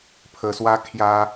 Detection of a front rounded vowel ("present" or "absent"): absent